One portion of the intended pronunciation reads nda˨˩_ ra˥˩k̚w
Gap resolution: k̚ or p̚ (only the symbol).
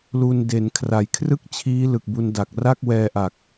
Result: k̚